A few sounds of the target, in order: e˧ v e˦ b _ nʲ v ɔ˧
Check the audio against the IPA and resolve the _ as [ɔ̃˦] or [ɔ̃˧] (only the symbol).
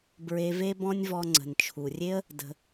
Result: ɔ̃˦